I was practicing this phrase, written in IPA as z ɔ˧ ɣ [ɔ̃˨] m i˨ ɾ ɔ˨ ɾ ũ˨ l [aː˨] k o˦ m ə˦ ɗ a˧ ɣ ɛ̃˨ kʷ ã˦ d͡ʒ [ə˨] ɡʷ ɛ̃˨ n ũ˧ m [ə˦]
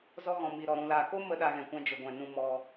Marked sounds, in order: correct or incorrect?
correct, correct, correct, incorrect: ɔ˦

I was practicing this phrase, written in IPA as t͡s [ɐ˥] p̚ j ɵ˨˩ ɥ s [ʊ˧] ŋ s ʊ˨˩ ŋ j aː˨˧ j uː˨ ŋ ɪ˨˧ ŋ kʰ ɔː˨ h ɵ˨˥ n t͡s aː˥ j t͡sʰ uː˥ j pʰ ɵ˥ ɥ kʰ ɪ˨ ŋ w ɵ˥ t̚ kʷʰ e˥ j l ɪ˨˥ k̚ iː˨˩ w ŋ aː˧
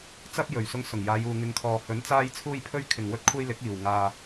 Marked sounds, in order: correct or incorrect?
correct, correct

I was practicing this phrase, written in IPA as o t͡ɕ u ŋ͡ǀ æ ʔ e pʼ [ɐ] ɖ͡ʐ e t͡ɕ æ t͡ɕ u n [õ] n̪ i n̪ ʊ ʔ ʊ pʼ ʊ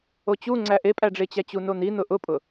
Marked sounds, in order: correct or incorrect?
incorrect: æ, incorrect: o

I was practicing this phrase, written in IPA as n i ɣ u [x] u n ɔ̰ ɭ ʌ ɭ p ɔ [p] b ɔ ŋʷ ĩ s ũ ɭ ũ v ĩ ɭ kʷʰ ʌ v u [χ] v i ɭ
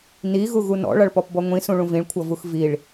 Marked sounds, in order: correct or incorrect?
incorrect: ɣ, correct, incorrect: x

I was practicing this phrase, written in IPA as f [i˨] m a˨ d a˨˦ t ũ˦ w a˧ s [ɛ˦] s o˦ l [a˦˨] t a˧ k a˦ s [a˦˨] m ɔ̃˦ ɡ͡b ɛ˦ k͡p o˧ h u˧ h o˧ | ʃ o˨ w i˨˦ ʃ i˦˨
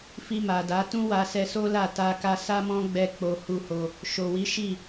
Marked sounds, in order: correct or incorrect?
incorrect: i˧, incorrect: ɛ˧, correct, incorrect: a˦

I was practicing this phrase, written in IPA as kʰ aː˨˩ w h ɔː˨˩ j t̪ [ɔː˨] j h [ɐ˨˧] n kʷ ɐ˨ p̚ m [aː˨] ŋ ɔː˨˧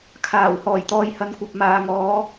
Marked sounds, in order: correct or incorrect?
correct, correct, correct

